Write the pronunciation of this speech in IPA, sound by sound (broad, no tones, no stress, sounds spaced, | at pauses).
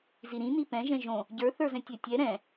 z i ɾ ĩ n i p ɛ̃ ʒ ɛ̃ ʒ õ | ɟ ə˞ θ ə˞ z ɛ̃ tʲ ɛ tʲ ɛ ɾ ɛ̃